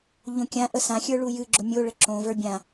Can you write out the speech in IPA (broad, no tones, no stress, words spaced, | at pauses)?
ʎõkʲãʔə sãxʲə˞ ɭujɨɡ͡ǁʊ mʲo ɭəǁõvə˞ bʲã